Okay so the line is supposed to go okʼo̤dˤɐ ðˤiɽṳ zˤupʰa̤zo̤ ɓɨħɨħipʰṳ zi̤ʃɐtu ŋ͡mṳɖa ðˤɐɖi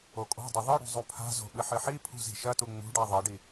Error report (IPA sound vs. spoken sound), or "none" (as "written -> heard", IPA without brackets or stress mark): none